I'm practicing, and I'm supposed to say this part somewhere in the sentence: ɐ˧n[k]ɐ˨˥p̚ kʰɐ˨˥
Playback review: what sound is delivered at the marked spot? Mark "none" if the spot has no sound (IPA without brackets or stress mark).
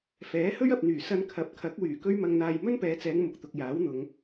kʰ